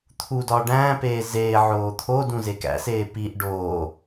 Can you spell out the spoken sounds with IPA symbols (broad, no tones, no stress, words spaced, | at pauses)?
t̪ʰudɒː ɖæ̃ːpeː zeː ʕoːt̪ʰodũ zekæ̰seː piʔ ɖoː